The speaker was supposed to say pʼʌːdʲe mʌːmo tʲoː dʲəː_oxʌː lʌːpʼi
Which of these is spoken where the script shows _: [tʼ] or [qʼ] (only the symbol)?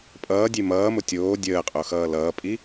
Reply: qʼ